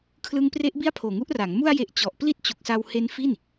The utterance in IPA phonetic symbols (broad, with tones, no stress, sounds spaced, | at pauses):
kʰ l ɯ˦˥ ŋ p r e˦˥ ʔ b i˥˩ a̯ pʰ oː˨˩ ŋ u˦˥ ʔ r a˩˦ ŋ m u˧ a̯ j e˨˩ ʔ t͡ɕ ɔ˨˩ ʔ p l i˥˩ t̚ t͡ɕ u˨˩ k̚ s a˧ w h e˦˥ n f i˥˩ n